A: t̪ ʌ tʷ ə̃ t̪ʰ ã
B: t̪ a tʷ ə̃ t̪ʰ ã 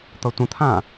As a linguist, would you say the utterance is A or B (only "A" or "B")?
A